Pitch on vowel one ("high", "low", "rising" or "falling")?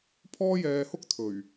high